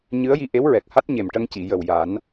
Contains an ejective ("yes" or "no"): no